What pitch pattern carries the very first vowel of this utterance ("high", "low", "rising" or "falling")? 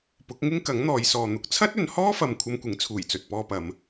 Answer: rising